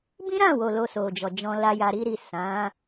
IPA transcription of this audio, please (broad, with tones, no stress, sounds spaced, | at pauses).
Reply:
b ĩ˦ ɾ ã˦˨ w o˨ l o˧ s o˨ d͡ʒ ɔ˨ d͡ʒ ɔ̃˧ l a˧ j a˧ ɾ i˦ ɾ i˦˨ s ã˨˦